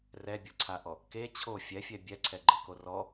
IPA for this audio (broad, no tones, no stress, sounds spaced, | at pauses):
r ɛ bʲ ɤ ǀʰ a ʔ ɔ | k e t͡ɕʰ o fʲ ɛ fʲ ɛ bʲ ɛ ǀʰ ɛ ɡ͡ǃ ɯ k o r ɔ